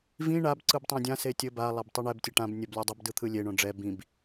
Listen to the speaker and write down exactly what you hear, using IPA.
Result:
v ĩ ɳ a b ǀ ɯ b tˤ õ dʲ ã s e tʲ ɘ b a lˠ a b tˤ ɯ ɳ ɛ b tʲ ɛ ʈ ã b nʲ ɛ b lʲ o dˤ ɘ b d ɯ t̪ʰ ɯ lʲ e ɳ õ ɖ͡ʐ ɛ b ĩ b

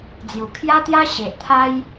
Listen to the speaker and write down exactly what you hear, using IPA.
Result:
d͡z j u˨˩ kʰ j a˦ t̪ j a˦ ɕ e˨ ʔ t̪ʰ a˦ j

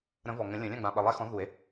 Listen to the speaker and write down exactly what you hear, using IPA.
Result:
ɾ ə̃˨˩˦ v ɔ˨˩ ŋ ə̃˨˩˦ lʲ ə̃˨˩˦ lʲ ã˥˩ ɡ͡b ã˨˩ ɓ ə˨˩ lˠ ɛ˦ x ɔ̃˨˥ ð u˨˩˦ e̯

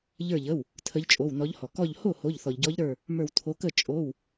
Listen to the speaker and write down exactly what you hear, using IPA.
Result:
ʎ ə˞˧˩ ʎ ə˩˧˩ w | tʰ ə˨˦ ʎ t͡ʃʼ o˩˧˩ w n ɔ˨˦ ʎ h ɔ˩ k ɔ˧˩ ʎ h o˥˩ h o˩˧˩ ʎ θ ɔ˩ ʎ ɟ ɔ˨˦ ʎ ɾ ə˞˧˩ | m ə˞˧˩ w tʰ o˨˦ k ə˥˩ t͡ʃʼ o˩˧˩ w

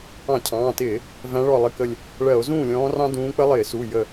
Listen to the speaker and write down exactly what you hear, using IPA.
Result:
ɑ̃˧˩˧ cʰ ɑ̃ː˩˧˩ t ɪː˧˩˧ | v æ̃˨˦ ɭ ɔ˧˩ lˠ ɪ˩˧˩ k ə˧˩ lʲ | ɭ ɜ˧˩˧ o̯ z ũː˥˩ lʲ ɔ̃ː˨˦ r ɑ̃˦ d ũː˨˦ k͡p ə˦ lˠ ɪː˧˩˧ s u˩˧˩ j ə˧˩

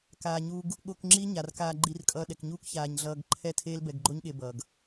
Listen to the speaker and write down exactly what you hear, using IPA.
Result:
k aː˨ ɲ uː˧ ɡ | ɠ o˧ k ŋ͡ǁ i˦ ɲ a˨ r k aː˧ ɡ͡ǃ i˧ r kʼ ʌː˧ ɗ ɛ˨ k ɲ uː˦ k ç aː˨ ɲ ɮ ʌː˧ ɡ ǃʰ ɛ˦ tʰ eː˦ l b ɛ˧ ɡ ɡ͡ǃ o˦ ɲ ɠ e˧ b ʌː˨ ɡ

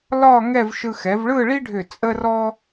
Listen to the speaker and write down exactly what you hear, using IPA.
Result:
l ɒ˥˧ ŋ ɛ˥˧ v ʃ ɯ˧ x ɛ˩˧ v ɭ ɯ˥˧ ɭ i˥ ɖʱ ʏ˧˩ t͡sʼ ə˥ r ɔ˥

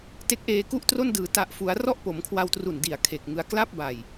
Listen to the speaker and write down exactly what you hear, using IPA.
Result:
t e˦˥ k̚ ʔ eː˧ k u˥˩ ʔ t r o˥˩ n d ɯː˩˦ t a˨˩ ʔ f u˩˦ a̯ r ɔ˥˩ ʔ p o˩˦ m kʰ w a˧ w t r u˨˩ n d i˨˩ a̯ kʰ e˨˩ k̚ ŋ ɯ˧ a̯ k l a˥˩ p̚ b a˨˩ j

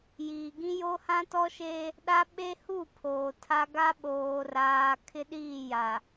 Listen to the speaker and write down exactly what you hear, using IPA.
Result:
j iː˨ ɡ ĩ˦ j o˦ h ã˦ t ɔ˦ ʃ e˦ | ɗ a˦ ɓ e˦ h u˦˨ pʰ oː˨ tʰ a˦ ɡ a˦ ɓ oː˨ r aː˨ kʰ ɪ˦ ɗ iː˦˨ j a˨

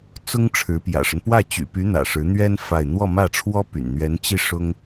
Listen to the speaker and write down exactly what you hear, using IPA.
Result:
t͡s ʊ˥ ŋ ʈ͡ʂʰ ɻ̩˧˥ p j ä̰˨˩ ʂ ə˦ n p w ä˥˩ t͡ɕ y̰˨˩ p y˧˥ n̪ ä̰˨˩ ʂ ɻ̩˧˥ n̪ ɥ ɛ˥ n f a˥˧ ɪ̯ n̪ w ɔ˥˧ m ä˥˩ ʈ͡ʂʰ w ɔ˥ p y̰˨˩ n n̪ ɥ ɛ˧˥ n t͡ɕ i˥˩ ʂ ʊ˥ ŋ

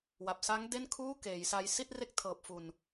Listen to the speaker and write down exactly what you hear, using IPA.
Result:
w a˨˩ p̚ s aː˦˥ ŋ d e˥˩ n kʰ uː˥˩ k eː˩˦ j s a˧ j s i˥˩ t̚ r e˦˥ k̚ tʰ ɤː˨˩ p̚ f u˨˩ n

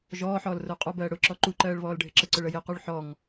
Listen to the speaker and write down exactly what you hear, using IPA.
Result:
ʒ ɔː ħ ɔː l r ʊː qʼ ɔ b ɜː ɽ ʊ ǁ ɔ ǃ u ǃ ɜː ɭ β ɔː l ɖʱ ɪ ǁ ə ǀ ʊ ɭ ə j ɪ q u ɭ ħ ɔ ŋ

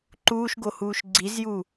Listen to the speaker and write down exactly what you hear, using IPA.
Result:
ǃ uː ʃ ɡ o h uː ʃ ɡ͡ǀ i z j u

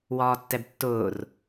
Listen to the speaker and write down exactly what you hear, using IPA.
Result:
w ɒː tː ɛ b tː ʊː r

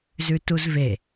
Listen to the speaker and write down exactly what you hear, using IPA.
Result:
z ʉ t u z v e

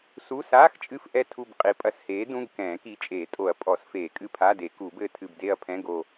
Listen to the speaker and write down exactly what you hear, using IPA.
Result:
s u˧˥˧ s aː˧˥˧ x t͡ʃʼ ɨ˦˨ f ʔ ɛ˦˨ tʰ u˦˨ b qʼ i˨˥ pʼ ɐ˨˩˦ s h eː˨˥ d ũ˧˥˧ ɡ k ɛ̃ː˨˩˦ k i˨˥ t͡ʃʼ eː˨˩˦ tʼ o˨˩˦ ɐ̯ pʼ ɔ˨˩˦ s f eː˨˩˦ kʼ ɨ˦˨ pʰ a˧˥˧ d e˨˩˦ k u˨˩˦ b ɘː˦˨ tʰ ɨ˦˨ b d e˦˨ ɐ̯ pʰ ɛ̃˧˥˧ ɡ o˦˨

